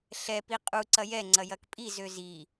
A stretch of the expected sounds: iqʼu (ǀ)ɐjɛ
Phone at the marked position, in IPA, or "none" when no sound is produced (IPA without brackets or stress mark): ǀ